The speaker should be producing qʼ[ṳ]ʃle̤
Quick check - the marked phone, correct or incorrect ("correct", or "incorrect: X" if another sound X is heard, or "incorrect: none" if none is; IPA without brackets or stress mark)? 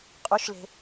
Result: incorrect: u